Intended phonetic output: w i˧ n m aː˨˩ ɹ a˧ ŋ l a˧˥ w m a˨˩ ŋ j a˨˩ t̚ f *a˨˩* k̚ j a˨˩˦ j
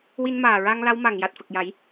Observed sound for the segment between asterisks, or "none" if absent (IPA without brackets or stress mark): ə˨˩